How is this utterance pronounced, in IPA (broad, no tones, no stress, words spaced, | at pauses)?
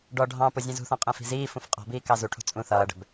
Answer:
ɖɔ ɖʱɑ̃pʊ zʲɛ̃zṳθɔ̃ qʼɛ̃fi̤ziːfũf qʼɔ̤biː kɑzuʈʰṳ t͡sʼũ θʌːɖɛ̤b